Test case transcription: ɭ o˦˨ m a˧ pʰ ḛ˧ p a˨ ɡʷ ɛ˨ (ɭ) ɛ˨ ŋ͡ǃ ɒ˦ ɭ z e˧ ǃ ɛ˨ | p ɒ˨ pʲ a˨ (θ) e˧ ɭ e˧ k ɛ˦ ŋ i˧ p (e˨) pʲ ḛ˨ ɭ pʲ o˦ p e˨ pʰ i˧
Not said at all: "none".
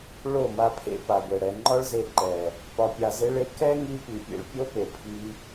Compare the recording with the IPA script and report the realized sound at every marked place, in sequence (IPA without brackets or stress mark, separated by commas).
ɽ, z, i˨